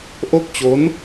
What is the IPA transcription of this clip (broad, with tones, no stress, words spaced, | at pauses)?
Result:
ʔo˥˩k̚t͡ɕo˦˥n